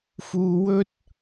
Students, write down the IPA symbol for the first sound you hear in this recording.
f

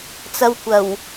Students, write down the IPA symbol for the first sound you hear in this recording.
t͡s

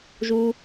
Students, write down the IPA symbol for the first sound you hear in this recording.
ʒ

